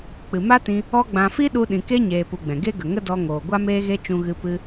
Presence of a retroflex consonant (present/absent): absent